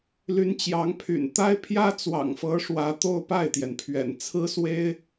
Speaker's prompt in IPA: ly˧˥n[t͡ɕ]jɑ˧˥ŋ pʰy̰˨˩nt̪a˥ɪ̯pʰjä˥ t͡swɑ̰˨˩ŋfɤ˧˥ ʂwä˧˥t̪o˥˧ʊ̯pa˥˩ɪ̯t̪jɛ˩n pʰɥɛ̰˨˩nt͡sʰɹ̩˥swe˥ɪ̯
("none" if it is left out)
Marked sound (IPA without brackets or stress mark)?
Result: t͡ɕ